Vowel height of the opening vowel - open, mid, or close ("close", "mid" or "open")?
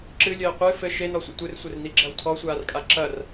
close